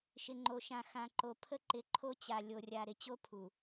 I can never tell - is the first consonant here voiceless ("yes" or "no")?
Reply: yes